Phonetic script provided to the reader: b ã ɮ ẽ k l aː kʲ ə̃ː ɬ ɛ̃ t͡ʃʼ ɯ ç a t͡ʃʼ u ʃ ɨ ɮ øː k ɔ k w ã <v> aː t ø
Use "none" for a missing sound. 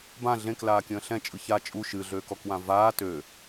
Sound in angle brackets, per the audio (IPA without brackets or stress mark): v